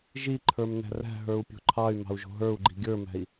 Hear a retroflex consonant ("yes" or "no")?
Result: no